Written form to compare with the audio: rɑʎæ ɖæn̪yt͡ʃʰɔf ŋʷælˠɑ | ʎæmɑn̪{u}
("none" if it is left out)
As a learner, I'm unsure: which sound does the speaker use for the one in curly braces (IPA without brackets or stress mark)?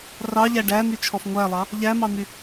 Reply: y